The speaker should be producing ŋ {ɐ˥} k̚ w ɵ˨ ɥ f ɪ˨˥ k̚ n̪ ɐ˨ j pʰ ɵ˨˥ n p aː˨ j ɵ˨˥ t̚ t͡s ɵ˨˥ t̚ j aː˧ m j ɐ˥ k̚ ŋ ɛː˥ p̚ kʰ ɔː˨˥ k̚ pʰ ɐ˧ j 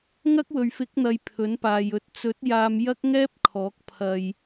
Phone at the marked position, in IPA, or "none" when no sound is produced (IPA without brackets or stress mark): ɐ˥